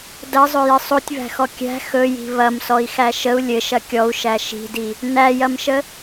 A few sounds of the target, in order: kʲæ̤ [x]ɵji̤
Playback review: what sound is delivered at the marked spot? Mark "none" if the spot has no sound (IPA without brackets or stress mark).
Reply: x